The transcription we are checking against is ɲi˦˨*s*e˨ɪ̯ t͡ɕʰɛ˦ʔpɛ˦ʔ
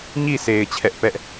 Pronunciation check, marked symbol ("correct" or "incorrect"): correct